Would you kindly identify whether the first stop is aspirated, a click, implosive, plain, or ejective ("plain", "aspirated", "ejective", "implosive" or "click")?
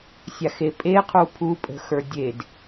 ejective